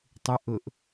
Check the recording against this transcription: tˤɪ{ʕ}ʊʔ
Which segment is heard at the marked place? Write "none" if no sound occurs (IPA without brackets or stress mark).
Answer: ʔ